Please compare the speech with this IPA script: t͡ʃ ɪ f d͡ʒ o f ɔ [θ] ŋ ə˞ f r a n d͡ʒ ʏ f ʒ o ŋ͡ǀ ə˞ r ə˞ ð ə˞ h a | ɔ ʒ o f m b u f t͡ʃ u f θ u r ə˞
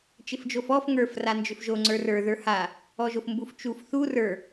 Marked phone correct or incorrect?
incorrect